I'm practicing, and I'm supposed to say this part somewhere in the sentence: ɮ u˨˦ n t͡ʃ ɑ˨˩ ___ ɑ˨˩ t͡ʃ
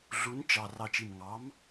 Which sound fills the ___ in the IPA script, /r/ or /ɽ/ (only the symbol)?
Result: r